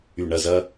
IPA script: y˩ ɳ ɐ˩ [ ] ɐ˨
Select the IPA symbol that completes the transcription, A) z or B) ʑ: A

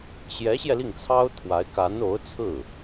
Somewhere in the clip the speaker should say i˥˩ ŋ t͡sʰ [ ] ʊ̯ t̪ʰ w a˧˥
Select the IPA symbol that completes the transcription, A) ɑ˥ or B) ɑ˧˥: A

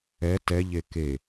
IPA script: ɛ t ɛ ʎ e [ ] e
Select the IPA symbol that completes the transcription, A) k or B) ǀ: A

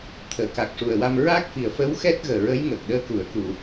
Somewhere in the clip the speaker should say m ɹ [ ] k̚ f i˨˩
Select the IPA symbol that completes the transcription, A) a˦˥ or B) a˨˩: A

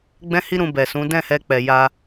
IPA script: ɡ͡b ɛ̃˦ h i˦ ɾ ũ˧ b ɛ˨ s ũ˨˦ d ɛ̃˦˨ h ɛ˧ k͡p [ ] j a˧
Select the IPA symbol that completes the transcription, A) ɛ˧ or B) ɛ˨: B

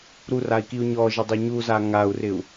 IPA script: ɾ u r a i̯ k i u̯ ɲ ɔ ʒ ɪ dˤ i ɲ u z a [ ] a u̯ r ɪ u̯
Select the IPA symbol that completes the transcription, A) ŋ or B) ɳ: A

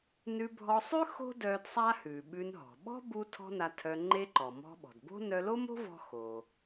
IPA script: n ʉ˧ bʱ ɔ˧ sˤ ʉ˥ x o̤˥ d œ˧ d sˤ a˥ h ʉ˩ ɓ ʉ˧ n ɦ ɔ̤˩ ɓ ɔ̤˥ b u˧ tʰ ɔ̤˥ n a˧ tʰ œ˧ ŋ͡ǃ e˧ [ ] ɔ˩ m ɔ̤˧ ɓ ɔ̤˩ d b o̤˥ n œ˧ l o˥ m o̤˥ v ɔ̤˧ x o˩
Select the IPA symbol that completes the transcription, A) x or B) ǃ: B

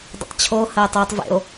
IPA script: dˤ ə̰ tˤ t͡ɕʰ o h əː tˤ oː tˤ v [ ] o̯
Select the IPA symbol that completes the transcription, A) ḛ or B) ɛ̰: A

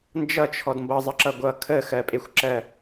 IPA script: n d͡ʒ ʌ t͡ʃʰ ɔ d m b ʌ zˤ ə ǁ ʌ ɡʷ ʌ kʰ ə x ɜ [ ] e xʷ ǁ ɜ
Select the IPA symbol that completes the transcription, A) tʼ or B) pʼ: B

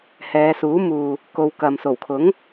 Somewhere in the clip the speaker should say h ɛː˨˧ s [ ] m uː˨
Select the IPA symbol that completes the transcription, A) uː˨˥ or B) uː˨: A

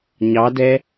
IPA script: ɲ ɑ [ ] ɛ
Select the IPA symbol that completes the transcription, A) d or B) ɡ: A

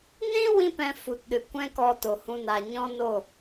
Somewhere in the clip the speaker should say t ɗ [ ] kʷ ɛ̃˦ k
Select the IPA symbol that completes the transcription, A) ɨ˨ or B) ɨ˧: A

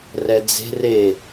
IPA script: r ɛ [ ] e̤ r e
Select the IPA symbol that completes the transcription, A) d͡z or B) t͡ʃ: A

